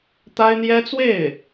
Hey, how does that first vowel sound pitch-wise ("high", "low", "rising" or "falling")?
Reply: high